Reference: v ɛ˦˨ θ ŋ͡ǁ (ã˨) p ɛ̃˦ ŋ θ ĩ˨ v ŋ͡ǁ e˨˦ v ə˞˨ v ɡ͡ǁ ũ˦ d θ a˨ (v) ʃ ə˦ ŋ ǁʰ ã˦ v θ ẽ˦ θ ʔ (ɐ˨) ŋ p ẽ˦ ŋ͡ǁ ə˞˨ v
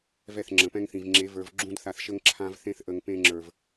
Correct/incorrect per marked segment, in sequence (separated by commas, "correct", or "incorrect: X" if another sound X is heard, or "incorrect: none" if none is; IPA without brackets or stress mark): incorrect: ə̃˨, incorrect: θ, incorrect: ə˨